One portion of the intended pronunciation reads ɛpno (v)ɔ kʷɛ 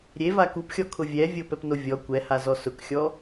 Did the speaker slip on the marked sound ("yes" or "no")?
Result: yes